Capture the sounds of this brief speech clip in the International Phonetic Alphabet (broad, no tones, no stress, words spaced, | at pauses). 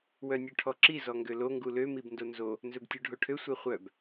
wœnʲøʈʰɔǁi zɔŋɡølo ŋɡulø mibndonzo | nzɵbtʲuɖʱoʈʰø sʷeχʷœb